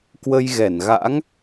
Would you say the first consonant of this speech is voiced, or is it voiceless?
voiceless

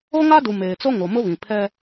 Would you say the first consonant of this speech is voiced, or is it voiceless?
voiced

